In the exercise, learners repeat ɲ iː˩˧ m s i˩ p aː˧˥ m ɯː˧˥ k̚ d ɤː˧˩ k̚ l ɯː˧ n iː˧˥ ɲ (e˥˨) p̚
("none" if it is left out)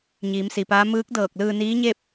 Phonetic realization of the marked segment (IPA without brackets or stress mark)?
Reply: e˥˨